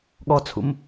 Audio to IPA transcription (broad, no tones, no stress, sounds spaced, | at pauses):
ɠ ɔ t͡sʰ ṵ m